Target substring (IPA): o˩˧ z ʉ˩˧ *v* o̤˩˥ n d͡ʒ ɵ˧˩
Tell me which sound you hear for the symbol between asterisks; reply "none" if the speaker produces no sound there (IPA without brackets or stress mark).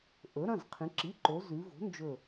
v